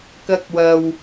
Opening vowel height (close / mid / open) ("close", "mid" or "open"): open